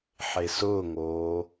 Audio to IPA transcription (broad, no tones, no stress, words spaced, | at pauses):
ħesʊːŋoː